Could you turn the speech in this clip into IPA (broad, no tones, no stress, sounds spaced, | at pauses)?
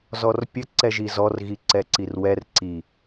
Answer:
z ɔ r pʲ ɘ ǀ ɛ ʒ i z ɔ r ɣ i ǀ ɛ ǀ i r w ɛ r ǀ i